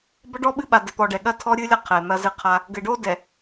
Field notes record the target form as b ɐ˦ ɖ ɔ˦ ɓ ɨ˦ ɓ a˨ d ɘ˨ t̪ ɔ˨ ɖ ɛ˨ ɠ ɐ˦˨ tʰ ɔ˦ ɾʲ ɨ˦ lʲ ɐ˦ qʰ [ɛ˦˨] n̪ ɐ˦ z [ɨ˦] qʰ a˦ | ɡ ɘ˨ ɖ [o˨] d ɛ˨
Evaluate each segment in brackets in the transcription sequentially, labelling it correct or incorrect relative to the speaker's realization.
incorrect: ɛ˨, correct, incorrect: o˦

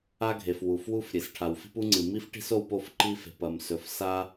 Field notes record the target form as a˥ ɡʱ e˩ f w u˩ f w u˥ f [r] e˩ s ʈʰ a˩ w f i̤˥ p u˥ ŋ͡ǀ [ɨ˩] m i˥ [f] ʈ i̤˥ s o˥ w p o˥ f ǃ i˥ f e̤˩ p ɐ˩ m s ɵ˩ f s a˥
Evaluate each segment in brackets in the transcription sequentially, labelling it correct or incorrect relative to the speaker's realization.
incorrect: ɾʲ, correct, correct

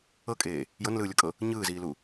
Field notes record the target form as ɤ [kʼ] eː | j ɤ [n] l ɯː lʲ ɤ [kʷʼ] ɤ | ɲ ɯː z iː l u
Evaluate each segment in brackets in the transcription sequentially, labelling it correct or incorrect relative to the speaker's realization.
correct, correct, incorrect: kʼ

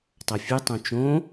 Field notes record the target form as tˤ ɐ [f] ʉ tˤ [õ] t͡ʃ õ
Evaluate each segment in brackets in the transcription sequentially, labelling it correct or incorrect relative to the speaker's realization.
incorrect: fʲ, correct

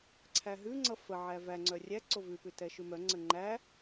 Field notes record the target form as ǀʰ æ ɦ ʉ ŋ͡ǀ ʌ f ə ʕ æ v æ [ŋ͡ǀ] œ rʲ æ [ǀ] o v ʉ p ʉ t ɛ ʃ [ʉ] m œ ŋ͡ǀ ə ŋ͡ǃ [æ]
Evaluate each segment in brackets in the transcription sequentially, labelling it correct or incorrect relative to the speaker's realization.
correct, correct, correct, correct

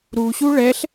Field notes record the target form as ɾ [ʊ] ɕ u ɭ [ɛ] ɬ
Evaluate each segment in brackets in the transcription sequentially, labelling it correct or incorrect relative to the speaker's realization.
incorrect: u, correct

